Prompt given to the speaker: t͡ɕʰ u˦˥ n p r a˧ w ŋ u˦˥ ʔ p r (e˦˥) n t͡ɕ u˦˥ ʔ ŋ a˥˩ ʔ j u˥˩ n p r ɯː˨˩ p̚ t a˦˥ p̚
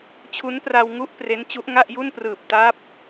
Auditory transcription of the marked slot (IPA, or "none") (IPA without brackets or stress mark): e˦˥